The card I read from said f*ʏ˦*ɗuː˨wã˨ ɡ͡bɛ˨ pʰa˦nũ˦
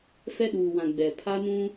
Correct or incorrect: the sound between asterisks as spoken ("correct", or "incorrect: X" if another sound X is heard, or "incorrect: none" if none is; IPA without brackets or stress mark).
incorrect: ɛ˦